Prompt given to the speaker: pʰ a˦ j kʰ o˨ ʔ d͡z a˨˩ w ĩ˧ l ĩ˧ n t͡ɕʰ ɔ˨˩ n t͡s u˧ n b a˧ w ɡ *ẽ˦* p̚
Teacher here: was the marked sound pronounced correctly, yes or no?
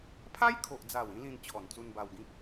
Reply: no